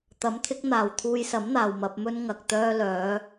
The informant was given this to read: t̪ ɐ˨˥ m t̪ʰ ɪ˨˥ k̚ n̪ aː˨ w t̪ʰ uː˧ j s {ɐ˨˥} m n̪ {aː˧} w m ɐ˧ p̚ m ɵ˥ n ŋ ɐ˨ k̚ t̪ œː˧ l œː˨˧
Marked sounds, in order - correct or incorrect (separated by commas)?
correct, incorrect